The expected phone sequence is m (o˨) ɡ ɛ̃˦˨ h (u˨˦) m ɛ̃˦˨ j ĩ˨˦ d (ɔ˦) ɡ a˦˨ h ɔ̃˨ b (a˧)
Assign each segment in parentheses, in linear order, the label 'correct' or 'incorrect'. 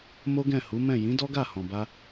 incorrect, correct, correct, correct

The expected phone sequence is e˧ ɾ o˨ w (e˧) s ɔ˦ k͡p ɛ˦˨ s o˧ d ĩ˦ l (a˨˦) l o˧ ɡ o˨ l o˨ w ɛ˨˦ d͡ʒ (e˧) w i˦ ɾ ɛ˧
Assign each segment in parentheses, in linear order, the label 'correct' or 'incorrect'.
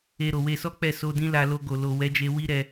correct, incorrect, correct

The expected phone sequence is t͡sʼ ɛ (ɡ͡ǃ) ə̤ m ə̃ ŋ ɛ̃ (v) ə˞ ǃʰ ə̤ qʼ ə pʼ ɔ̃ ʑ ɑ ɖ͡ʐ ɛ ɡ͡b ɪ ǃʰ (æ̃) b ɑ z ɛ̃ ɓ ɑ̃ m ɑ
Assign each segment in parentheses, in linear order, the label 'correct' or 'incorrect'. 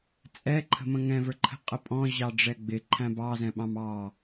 incorrect, correct, correct

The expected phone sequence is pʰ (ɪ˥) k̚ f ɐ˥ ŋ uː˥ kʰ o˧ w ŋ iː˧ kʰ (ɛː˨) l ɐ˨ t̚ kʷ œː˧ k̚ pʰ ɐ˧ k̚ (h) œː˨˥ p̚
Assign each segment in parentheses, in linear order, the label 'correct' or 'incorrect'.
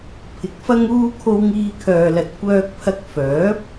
incorrect, incorrect, incorrect

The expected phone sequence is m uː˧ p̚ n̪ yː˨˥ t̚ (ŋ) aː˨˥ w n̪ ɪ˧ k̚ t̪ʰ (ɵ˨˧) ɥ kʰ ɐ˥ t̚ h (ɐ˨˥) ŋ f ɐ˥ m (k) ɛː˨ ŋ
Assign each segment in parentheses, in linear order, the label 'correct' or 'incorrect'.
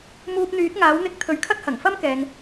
correct, correct, incorrect, correct

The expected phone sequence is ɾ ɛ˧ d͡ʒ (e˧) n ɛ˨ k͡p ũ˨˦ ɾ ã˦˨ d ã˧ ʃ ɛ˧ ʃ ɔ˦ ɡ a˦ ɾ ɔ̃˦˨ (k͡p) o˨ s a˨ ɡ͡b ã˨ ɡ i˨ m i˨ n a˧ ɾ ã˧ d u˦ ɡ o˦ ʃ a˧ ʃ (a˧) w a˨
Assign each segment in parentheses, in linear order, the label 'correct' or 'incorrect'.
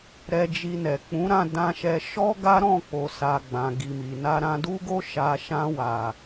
incorrect, correct, incorrect

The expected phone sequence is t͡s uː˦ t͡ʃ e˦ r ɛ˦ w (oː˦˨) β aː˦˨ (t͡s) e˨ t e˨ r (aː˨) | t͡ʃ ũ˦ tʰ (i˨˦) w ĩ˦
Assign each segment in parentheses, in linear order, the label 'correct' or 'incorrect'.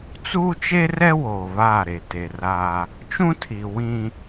incorrect, incorrect, incorrect, incorrect

